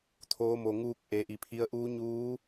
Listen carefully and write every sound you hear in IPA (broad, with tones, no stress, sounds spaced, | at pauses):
t̪ʰ oː˧˥ m o˧ ŋ uː˧˥ k̚ ʔ e˧˥ ʔ i˧ pʰ i˧ ə̯ ʔ uː˧˥ ɲ uː˧˥